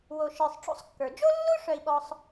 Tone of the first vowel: low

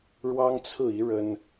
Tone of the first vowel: high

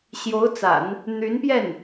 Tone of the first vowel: rising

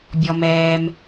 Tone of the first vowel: low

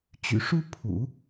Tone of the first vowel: low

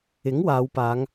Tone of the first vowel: rising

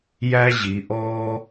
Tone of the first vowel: high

